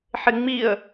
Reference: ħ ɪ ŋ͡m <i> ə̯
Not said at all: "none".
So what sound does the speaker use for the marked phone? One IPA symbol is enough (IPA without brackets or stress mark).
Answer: i